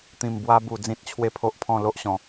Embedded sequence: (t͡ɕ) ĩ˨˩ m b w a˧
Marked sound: incorrect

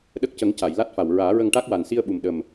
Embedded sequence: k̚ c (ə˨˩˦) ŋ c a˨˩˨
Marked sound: correct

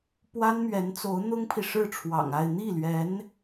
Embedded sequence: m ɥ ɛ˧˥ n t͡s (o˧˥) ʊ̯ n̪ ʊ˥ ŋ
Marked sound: correct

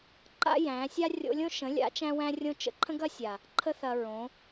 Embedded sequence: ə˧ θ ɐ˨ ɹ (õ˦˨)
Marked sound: incorrect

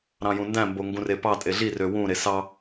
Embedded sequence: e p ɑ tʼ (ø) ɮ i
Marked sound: incorrect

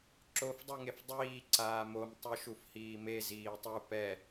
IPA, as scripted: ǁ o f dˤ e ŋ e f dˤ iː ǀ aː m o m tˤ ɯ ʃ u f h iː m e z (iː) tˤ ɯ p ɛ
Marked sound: correct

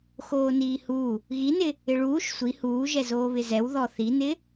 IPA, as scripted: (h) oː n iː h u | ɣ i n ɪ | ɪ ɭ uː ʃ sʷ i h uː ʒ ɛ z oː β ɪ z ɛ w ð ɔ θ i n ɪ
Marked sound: incorrect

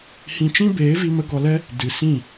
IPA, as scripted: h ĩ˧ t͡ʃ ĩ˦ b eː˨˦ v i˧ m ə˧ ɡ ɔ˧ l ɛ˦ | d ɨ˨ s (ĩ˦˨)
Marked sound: correct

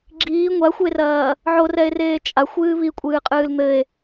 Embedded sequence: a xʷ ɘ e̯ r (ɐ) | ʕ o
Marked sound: incorrect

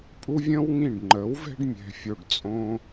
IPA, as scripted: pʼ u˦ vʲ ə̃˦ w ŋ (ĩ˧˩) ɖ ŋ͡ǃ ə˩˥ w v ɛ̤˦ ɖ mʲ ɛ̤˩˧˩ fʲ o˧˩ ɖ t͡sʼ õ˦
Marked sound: correct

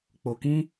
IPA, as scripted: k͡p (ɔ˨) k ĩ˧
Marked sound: incorrect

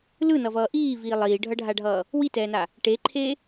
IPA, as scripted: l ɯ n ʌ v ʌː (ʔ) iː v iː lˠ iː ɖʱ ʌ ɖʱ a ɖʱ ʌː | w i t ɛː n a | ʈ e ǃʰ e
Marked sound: correct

